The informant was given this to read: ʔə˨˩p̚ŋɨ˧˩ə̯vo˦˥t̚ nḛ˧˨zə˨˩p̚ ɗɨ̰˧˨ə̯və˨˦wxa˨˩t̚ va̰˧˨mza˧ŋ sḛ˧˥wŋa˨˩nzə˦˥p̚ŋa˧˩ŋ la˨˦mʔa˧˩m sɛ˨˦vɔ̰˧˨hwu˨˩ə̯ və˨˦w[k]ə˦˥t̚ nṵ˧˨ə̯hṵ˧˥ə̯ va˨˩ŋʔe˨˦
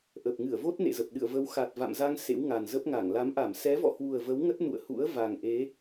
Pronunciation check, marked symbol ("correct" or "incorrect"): incorrect